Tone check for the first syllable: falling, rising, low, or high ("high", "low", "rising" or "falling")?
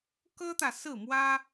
high